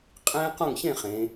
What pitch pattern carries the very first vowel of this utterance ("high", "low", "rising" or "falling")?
high